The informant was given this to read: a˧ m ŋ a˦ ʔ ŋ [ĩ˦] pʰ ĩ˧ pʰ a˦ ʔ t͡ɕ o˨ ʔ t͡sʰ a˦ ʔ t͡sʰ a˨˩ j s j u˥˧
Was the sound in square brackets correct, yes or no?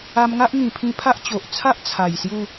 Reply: no